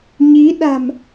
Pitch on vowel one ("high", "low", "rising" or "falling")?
rising